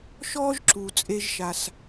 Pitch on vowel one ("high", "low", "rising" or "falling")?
high